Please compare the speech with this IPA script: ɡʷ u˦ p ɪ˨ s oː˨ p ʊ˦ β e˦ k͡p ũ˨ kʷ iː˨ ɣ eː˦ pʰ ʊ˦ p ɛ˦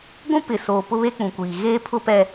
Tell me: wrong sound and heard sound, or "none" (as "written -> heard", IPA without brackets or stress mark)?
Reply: u˦ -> ũ˦